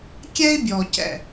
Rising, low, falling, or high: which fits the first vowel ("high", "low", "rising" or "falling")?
high